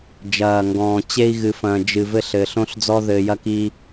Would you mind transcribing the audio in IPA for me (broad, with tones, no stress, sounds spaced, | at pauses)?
d͡ʒ ɐː˨ ŋ ɡ ɔ̃ː˨ t͡ɕ e˦ i̯ ɣ ɨ˨ f ɐ̃ː˨ d͡ʒ ɨ˨ v ɘ˦ ɬ ɘː˨ ɬ õ˦ ɬ d͡z ɔ˦ ð ɘː˨ j ɐ˦ k i˦